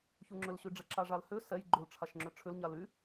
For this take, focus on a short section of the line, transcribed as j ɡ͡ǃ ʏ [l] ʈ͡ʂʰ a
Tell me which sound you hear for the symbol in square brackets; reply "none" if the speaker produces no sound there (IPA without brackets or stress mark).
l